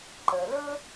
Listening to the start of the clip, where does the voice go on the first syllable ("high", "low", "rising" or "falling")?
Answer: low